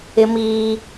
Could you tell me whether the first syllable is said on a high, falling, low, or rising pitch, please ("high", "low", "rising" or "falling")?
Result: high